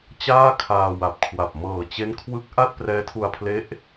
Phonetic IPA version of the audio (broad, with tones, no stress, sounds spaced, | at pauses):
t͡ɕ aː˥˩ kʰ aː˧ w a˨˩ p̚ kʰ w a˨˩ p̚ m ɤː˨˩ t͡ɕ e˦˥ n kʰ w ɯ˦˥ k̚ ʔ a˥˩ t̚ p r ɛː˦˥ tʰ u˧ a̯ pʰ l e˦˥ ʔ